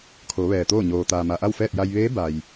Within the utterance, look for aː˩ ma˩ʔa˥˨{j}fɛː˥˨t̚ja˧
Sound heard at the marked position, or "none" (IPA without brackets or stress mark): w